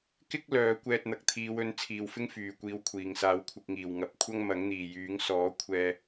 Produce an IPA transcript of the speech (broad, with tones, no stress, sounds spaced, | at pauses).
k ɪ˥ k̚ l œː˨˧ kʷ ɛː˧ t̚ n̪ ɐ˨ k̚ t̪ʰ iː˨˧ w ɵ˨˧ n t͡sʰ iː˨ w f ɪ˥ ŋ f yː˨ kʷ iː˨˧ w kʷʰ iː˨˩ ŋ s aː˨˥ w kʷʰ ɪ˨ k̚ ŋ iː˨˩ w ŋ ɐ˨ p̚ kʷʰ ɐ˥ ŋ m ɐ˨˥ ŋ n̪ iː˨ j yː˨˥ ŋ s ɔː˨˥ kʷʰ ɛː˧